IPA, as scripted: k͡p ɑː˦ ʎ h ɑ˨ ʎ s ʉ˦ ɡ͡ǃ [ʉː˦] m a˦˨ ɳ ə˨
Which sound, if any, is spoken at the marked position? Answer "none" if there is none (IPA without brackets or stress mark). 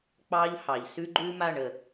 ʉː˦